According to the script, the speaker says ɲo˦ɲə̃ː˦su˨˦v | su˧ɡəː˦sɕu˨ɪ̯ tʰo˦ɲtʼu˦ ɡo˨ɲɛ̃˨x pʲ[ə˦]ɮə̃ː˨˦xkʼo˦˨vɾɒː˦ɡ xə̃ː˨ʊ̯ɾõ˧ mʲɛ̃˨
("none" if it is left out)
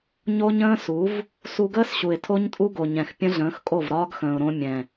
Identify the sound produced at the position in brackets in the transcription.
ə̃˦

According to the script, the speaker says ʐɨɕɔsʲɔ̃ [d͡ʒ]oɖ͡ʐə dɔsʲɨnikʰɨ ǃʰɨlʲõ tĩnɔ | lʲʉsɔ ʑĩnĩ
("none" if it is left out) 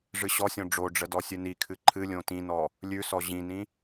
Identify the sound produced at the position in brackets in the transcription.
ɖ͡ʐ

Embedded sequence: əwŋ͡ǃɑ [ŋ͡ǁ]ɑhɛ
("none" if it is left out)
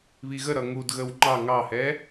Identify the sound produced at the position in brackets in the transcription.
ŋ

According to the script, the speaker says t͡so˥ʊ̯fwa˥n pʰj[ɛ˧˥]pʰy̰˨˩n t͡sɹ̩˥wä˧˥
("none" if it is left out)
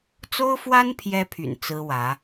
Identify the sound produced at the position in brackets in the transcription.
ɛ˥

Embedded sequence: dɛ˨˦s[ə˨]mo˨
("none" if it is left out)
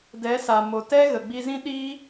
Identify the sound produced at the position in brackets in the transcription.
a˨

